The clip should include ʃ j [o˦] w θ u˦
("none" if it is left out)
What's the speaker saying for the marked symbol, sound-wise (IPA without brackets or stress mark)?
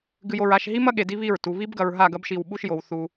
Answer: o˨